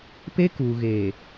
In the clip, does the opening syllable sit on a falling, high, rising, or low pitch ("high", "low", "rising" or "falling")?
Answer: high